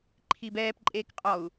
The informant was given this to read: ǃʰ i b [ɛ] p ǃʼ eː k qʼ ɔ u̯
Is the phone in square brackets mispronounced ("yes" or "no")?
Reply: yes